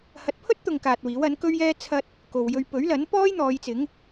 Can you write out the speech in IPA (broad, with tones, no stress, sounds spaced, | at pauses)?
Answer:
h ɐ˨˥ t̚ pʰ ɵ˥ t̚ t̪ ʊ˨ ŋ k aː˨ t̚ w iː˨˥ w ɐ˨˥ n k ɵ˥ ɥ j ɛː˥ t͡sʰ ɐ˧ t̚ | k o˨ w j ɵ˧ ɥ p ɵ˨˥ ɥ l ɐ˨˥ n p ɔː˥ j n̪ ɔː˨˧ j t͡s ɪ˨˥ ŋ